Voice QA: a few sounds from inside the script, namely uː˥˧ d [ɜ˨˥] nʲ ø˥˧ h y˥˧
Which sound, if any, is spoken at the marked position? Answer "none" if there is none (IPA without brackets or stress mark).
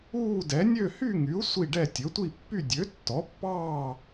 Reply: ɛ˨˥